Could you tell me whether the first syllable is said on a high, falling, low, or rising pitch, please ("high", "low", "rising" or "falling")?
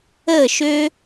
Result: falling